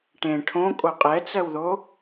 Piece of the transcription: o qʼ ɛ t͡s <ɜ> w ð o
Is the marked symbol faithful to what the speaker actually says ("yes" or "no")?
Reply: yes